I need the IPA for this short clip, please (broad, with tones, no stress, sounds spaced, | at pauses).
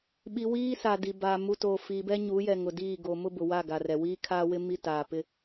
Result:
ɓ i˨ w iː˦ s a˨ d i˨ b a˨ m u˨ t oː˨ f iː˨ b ɛ˦ ɲ u˨˦ j ɛ˨ ŋ ʊ˨ d iː˦˨ ɡ o˨ m ʊ˦ b ʊ˨ w a˦˨ ɡ a˨ r ɛ˨ w iː˦ kʰ aː˦ w ɪ˦ m i˦ t aː˨ p ɪ˦